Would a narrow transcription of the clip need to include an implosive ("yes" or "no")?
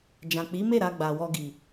no